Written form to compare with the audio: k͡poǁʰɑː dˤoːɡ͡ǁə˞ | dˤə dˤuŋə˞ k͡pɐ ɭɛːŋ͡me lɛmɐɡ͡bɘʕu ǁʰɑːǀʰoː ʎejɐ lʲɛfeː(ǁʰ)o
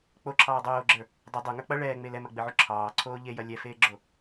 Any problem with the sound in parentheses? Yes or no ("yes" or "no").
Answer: yes